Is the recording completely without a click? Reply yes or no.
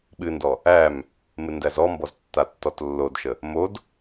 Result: yes